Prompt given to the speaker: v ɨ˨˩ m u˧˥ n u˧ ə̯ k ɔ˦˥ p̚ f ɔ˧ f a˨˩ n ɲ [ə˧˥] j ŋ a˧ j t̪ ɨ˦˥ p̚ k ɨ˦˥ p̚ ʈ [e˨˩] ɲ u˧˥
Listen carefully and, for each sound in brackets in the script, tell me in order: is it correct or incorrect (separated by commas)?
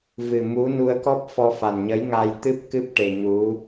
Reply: correct, correct